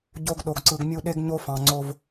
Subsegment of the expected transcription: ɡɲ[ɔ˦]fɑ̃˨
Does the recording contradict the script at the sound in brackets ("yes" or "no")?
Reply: yes